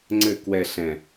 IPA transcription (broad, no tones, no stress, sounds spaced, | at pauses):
ŋ͡ǀ ɘ k w ɛ ɬ ɛ̃